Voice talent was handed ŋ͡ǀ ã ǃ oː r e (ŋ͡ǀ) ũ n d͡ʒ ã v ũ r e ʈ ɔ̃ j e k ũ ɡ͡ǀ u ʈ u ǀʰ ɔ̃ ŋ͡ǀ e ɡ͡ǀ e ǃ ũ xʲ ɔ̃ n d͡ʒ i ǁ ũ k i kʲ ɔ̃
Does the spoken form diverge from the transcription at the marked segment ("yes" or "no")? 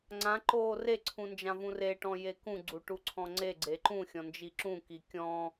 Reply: yes